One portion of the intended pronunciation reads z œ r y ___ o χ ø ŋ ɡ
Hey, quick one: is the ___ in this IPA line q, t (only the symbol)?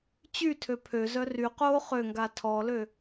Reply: q